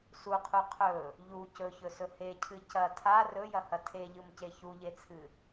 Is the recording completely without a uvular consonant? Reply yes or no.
no